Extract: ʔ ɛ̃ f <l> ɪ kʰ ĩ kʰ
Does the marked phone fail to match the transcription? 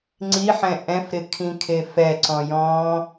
yes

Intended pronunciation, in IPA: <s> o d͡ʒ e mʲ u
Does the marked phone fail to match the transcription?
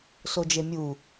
no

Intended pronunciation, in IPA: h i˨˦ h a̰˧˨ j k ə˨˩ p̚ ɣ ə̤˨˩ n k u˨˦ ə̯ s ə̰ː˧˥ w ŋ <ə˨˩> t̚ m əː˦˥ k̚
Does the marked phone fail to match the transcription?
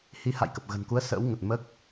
no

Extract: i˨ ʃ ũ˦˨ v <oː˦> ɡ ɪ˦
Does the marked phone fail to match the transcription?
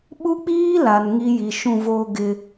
no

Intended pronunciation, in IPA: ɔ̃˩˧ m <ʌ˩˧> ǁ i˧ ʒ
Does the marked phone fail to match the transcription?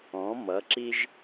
no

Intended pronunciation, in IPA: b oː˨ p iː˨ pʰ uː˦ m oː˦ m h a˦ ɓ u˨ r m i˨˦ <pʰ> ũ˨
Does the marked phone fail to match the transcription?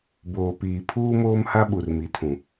yes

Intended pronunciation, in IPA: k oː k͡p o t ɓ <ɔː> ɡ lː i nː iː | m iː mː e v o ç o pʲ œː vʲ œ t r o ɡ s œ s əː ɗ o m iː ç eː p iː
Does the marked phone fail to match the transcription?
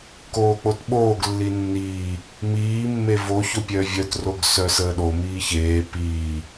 yes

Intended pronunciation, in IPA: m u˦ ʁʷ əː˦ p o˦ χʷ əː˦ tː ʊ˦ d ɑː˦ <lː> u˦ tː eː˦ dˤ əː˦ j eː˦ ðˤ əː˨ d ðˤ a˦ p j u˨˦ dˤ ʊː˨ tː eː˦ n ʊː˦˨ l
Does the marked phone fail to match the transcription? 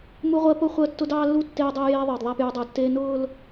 no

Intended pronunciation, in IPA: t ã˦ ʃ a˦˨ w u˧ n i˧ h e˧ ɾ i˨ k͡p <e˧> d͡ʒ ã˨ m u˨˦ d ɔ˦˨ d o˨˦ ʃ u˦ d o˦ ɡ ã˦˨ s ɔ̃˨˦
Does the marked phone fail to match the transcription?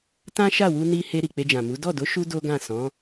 no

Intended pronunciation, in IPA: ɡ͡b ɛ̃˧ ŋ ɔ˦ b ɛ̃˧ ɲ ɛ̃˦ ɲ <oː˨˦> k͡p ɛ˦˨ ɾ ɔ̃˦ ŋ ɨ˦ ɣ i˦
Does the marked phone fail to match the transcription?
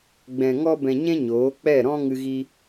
no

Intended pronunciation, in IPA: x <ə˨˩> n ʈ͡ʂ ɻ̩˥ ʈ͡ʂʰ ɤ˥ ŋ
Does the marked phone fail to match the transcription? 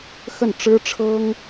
yes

